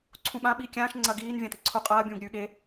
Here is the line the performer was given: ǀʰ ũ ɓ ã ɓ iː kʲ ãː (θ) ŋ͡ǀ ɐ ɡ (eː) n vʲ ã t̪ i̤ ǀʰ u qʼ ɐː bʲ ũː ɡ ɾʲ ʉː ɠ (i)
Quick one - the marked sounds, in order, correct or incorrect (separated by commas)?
incorrect, incorrect, incorrect